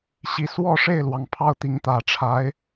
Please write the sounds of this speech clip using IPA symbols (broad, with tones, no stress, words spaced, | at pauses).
ɕi˨˩swɔ˥˧ʂe˥˩ɪ̯lwɑ˩ŋ pʰɑ˥˩ʊ̯t̪i˧˥ŋt̪ä˨˩ ʈ͡ʂʰa˧˥ɪ̯